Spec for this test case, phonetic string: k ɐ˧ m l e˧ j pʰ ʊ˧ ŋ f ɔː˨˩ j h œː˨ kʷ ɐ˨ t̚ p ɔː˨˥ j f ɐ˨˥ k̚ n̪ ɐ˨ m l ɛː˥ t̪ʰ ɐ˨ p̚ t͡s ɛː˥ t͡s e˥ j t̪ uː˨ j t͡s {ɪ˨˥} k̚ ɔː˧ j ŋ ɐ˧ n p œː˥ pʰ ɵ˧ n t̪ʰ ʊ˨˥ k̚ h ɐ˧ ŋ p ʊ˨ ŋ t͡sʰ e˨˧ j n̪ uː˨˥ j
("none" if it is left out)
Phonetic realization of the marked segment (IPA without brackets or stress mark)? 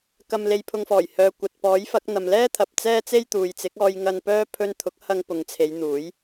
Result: ɪ˨˥